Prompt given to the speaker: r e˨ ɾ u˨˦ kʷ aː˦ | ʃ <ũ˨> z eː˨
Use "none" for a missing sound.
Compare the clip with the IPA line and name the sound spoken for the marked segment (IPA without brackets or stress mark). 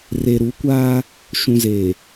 ũ˨